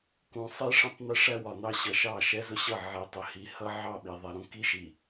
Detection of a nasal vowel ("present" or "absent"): present